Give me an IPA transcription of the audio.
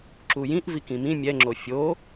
ǁ u j ĩ ʔ v i k ĩ m ĩ mʲ ɛ ŋ͡ǁ o fʲ o

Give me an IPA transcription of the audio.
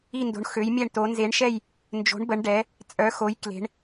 i˦˨ n d o̤˨˦ ɳ x ø˨˦ j mʲ ɛ˦˨ ɳ t o˨˦ n z e˨˦ ɳ ʃ ɛ˦˨ j | n d͡ʒ o̤˨˦ ɳ b ə˨˦ ɳ ɖ ɛ˨˦ | t͡sʼ œ˨˦ x o˨˦ j k l e̤˨˦ ɳ

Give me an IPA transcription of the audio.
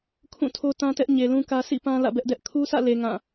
kʰ ũ˦˨ tʰ o˦ t ã˦ t ɛ˦ ʔ ɲ e˨ l ũ˦ k ä˦ sʰ ḭ˦˨ p ã˦ l ä̰˦˨ b ɛ˦ ʔ d ɛ˦ ʔ kʰ u˦ sʰ ä̰˦˨ l e˨ ŋ ã˦˨

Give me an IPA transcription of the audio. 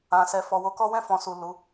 ã˨ s ɛ˨ f ɔ˨ w o˨˦ k ɔ˦ w ɛ̃˦˨ f ɔ̃˨ s u˨ l u˨˦

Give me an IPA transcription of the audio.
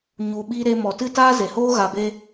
ɲ u˨ ɓ iː˧ ɾ e˧ m ɔ˨ t ɨ˦˨ t aː˦ z e˨ h oː˦ ɣ a˧ b e˦

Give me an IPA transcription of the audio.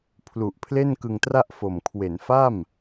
pʰ l u˨˩ ʔ pʰ l e˥˩ n k ɯ˧ ŋ t r a˥˩ ʔ f o˨˩ m kʰ w e˩˦ n f a˥˩ m

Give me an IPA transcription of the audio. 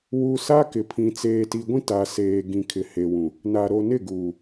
w u˨ s a˦ k ɪ˨ pʰ ĩ˨ t͡s eː˨ t i˨ ɡʷ ĩ˦ t a˨ s eː˨ ɡ ĩ˨ kʰ ɪ˨ h e˨ w ũ˨ | n a˨ ɾ o˨ n ɪ˦˨ ɡ uː˨

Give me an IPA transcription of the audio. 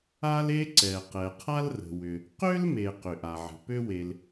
a˥ l e˥ ǀ ɛ˩ q ɛ˩ qʰ a˥ l r ə̤˩ w ʏ˩ | q ø˥ l m e˩ q ʏ˩ ʔ a˩ ʕ ə̤˩ p ø˥ w e˩ l

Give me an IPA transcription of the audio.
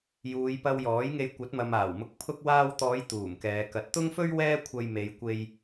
j uː˨˧ j p ɐ˧ w j ɔː˨˥ j ŋ e˧ j kʷ ɐ˨˥ t̚ m ɐ˨ m aː˨˩ w m ʊ˧ k̚ pʰ ʊ˧ k̚ w aː˧ w t̪ ɔː˨˧ j t̪ uː˨˩ m k ɛː˨˧ k ɐ˨ t̚ t̪ ʊ˥ ŋ f ɵ˥ ɥ w ɛː˥ kʷʰ ɐ˧ j m e˨˧ j kʷ e˧ j

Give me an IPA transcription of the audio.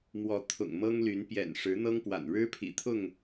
m w ɔ˨˦ t̪ʰ ʊ̰˨˩ ŋ m ɤ˦ ŋ l y˨˦ n p j ɛ̰˨˩ n ʂ ɻ̩˨˦ n̪ ɤ˦ ŋ p w a̰˨˩ n ɻ ɻ̩˦ pʰ ḭ˨˩ t̪ʰ ʊ˥˨ ŋ

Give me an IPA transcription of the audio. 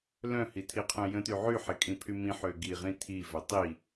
l œ̃ h i tʰ i qʰ œ̃ j ə̃ t y ʕ y ħ e kʼ ĩ pʰ y m ĩ ħ ø ɡ i ʁ ĩ tʰ i v œ tˤ i

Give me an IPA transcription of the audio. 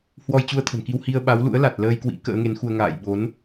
h w ɔ˧ j t͡ɕ u˧ ə̯ t̪ʰ ə̤˨˩ n k i˧ w h i˧ ə̯ ɓ a˨˦ w l ṵ˧˥ ə̯ l a˨˩ t̚ l əː˧ j k w ḭ˧˥ k ə̰ː˧˥ ŋ e˨˦ n x u˧ ə̯ ŋ a̰ː˧˨ j ɓ o˨˦ n

